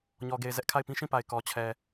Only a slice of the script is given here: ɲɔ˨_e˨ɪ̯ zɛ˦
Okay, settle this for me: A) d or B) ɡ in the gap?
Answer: B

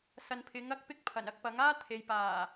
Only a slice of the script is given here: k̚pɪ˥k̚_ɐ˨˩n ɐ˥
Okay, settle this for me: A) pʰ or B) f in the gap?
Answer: A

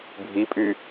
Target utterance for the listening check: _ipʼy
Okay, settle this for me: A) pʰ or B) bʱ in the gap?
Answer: B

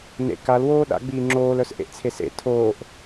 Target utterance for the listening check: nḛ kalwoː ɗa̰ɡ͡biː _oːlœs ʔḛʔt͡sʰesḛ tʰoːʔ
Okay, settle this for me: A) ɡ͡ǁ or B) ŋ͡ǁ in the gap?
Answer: B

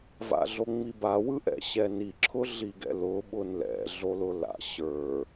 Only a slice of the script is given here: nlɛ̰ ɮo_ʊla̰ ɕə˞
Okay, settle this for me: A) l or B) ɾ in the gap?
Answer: A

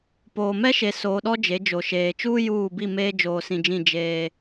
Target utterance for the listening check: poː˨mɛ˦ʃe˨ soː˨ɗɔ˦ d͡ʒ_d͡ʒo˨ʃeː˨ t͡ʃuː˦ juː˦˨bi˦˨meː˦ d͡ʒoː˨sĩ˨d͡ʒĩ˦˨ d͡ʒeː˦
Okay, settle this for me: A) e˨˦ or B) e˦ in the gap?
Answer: A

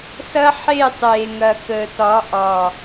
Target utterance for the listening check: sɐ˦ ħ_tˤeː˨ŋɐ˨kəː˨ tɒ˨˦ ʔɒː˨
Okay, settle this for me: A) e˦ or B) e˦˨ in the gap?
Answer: B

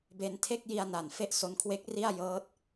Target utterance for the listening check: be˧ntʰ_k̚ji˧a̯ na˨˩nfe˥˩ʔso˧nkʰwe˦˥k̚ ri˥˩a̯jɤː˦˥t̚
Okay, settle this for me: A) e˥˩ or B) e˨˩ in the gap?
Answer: A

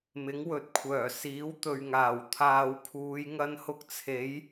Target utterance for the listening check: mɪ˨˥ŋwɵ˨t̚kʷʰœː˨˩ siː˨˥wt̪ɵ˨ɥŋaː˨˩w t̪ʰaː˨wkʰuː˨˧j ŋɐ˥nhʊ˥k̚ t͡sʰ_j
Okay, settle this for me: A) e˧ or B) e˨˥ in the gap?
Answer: B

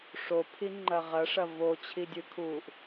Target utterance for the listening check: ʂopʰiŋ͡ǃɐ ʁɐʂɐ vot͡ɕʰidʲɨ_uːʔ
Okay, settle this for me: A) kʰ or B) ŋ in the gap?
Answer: A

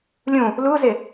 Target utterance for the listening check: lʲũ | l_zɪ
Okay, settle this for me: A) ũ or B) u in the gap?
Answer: B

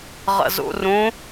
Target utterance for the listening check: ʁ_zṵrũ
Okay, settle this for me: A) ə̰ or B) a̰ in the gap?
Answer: A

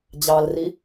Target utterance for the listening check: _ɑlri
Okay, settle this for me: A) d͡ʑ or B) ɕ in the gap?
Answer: A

